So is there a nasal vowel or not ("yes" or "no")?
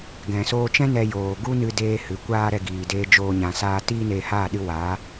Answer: yes